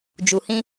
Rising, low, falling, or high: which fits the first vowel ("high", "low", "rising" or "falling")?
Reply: low